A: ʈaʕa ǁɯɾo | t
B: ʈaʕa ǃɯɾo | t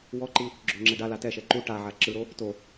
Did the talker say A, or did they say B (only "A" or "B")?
A